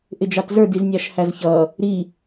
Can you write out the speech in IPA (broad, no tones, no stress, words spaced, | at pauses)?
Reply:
ʔɪd͡ʒɑtzə˞ diznʲɑʃhæzçʌ | ɾi